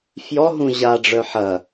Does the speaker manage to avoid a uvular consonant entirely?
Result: yes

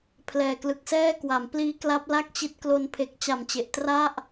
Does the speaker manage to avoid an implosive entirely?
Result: yes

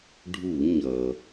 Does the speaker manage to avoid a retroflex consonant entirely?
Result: no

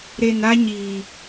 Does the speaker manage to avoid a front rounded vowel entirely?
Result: yes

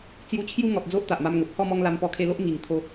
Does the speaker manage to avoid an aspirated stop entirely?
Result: no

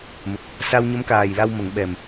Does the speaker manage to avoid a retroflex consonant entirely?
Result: yes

